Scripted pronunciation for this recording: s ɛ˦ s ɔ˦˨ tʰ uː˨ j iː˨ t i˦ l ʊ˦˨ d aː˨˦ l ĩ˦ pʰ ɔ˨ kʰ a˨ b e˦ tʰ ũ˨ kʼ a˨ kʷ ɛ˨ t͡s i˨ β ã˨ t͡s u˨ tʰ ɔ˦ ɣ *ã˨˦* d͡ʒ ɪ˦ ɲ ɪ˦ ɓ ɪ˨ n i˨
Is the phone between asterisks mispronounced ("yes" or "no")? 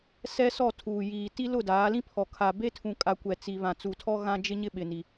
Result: yes